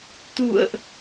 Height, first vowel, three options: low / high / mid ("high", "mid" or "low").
high